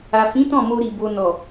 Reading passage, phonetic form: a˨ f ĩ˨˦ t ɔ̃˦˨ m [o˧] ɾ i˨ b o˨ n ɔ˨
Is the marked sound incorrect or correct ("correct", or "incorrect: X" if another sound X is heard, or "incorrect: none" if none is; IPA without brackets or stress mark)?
correct